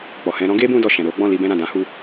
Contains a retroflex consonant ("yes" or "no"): no